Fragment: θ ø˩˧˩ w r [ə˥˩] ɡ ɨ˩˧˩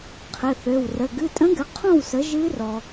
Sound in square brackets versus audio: incorrect: ə˩˧˩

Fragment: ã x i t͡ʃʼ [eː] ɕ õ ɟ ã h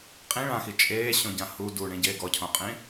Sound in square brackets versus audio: correct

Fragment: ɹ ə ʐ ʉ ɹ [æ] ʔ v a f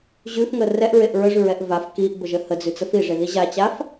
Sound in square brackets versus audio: incorrect: ɛ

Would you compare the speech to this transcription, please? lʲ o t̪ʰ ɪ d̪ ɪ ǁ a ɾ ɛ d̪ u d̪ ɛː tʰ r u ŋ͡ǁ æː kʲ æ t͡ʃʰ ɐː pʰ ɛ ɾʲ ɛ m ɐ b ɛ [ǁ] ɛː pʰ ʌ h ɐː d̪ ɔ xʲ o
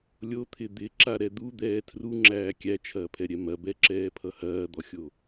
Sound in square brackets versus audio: correct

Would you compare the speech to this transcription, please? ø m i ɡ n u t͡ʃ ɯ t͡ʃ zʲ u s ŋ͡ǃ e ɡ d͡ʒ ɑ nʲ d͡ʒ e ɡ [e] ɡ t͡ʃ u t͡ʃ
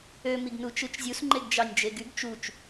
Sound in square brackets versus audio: incorrect: y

